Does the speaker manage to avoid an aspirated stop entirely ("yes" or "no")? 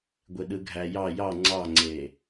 yes